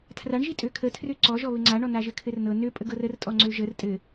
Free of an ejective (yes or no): no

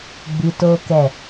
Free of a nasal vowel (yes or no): yes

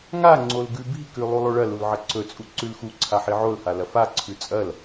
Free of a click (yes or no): no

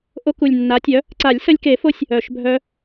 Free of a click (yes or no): no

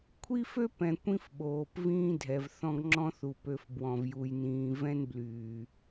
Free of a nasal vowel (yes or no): no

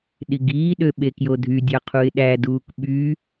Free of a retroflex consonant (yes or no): yes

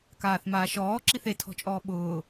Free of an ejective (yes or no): no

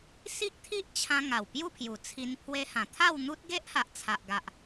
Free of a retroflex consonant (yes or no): yes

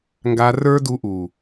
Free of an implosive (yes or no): yes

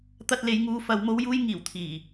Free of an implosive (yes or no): yes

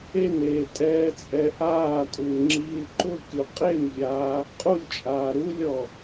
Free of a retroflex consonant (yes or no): yes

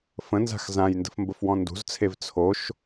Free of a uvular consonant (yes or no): yes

